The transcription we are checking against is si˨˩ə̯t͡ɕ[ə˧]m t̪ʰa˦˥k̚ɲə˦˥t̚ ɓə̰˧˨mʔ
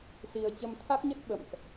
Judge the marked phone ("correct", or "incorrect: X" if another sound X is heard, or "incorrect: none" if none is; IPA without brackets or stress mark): correct